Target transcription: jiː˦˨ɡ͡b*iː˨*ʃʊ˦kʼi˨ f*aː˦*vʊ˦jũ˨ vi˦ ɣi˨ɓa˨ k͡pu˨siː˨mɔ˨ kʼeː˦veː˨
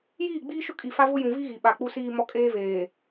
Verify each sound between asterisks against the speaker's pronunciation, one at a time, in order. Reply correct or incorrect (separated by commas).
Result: incorrect, incorrect